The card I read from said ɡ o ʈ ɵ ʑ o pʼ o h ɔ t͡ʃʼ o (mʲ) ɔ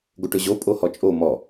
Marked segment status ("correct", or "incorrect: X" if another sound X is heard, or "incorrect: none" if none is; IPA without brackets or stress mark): incorrect: m